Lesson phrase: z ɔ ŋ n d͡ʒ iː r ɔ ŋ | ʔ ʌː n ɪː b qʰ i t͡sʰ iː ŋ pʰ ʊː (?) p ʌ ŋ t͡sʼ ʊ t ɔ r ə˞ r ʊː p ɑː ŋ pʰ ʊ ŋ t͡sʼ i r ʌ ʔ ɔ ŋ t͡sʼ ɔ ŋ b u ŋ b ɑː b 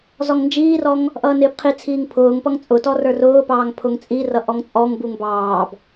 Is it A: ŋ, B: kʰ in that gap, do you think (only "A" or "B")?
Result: A